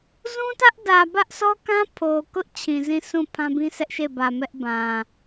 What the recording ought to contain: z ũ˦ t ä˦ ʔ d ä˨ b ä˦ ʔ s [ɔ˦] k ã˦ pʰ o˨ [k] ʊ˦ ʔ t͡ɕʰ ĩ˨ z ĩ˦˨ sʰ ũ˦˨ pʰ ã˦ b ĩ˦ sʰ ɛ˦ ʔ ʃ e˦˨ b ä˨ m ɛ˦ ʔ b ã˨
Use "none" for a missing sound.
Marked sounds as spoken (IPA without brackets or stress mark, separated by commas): ɔ˦, k